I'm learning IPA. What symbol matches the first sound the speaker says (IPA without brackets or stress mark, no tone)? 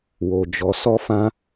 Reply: w